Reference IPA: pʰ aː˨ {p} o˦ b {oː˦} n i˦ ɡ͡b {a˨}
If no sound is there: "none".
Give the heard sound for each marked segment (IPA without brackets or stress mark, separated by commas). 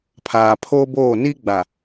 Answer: pʰ, oː˦˨, a˨